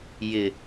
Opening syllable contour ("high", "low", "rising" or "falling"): low